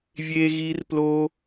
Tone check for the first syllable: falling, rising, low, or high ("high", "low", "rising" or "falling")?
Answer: high